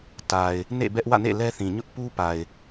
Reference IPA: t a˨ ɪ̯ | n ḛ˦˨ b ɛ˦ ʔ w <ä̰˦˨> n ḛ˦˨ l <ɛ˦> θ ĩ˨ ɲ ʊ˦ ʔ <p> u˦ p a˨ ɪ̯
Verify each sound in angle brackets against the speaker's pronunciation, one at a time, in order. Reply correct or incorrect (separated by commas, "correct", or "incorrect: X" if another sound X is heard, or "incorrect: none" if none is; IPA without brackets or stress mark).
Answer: correct, correct, correct